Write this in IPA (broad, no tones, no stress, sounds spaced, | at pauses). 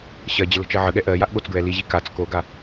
ɕ ɜ d͡ʑ ə l ə̤ t͡ʃ ɜ ʕ ə ɠ ɛ ʔ ɜ j a ʔ ɠ o t͡s ɡ ɹ ɛ l i ʑ i k a t͡s k o ɡ a